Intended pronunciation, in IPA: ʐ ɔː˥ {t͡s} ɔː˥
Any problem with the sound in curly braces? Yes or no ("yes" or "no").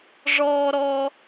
yes